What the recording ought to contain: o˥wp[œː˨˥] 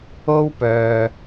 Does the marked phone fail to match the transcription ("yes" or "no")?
yes